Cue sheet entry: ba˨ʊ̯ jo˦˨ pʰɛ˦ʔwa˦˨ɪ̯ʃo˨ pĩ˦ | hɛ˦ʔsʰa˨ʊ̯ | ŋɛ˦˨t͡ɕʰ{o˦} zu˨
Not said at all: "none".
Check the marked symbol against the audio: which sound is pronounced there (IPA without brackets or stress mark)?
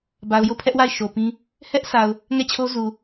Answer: o˦